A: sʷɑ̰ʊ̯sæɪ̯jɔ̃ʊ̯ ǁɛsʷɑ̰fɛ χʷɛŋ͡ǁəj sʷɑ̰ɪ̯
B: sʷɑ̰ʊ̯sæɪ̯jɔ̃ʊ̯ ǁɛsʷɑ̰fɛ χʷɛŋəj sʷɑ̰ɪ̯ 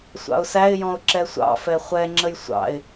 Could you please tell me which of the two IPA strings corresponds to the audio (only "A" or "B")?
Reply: A